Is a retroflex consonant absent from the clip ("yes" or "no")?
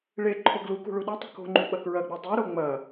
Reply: no